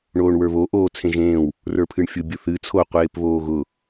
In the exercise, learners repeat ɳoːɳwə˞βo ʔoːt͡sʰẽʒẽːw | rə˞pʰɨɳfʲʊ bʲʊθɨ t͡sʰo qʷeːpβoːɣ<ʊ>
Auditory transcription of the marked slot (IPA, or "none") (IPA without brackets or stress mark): ʊ